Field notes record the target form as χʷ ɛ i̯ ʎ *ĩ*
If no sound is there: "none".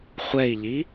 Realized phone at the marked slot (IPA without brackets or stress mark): i